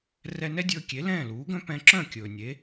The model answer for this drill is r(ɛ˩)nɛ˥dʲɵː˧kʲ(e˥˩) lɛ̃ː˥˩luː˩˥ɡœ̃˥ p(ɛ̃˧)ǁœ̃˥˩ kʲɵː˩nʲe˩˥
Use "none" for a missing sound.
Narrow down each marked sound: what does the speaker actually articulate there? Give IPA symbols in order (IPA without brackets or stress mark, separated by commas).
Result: ɛ˧, e˩˥, ɛ̃˧